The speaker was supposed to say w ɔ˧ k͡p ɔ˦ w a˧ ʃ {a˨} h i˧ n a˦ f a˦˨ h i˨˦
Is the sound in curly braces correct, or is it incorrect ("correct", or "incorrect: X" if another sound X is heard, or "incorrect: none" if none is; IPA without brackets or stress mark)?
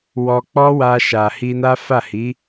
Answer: correct